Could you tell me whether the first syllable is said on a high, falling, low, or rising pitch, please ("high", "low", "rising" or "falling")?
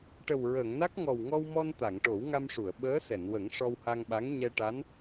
low